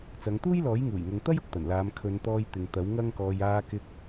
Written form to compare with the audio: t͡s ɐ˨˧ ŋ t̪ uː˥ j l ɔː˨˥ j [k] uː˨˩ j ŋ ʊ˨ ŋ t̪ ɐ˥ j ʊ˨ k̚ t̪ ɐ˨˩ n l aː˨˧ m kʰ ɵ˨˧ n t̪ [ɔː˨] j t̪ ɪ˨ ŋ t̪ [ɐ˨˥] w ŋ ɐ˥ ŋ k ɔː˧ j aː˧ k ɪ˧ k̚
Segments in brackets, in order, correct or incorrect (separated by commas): incorrect, incorrect, correct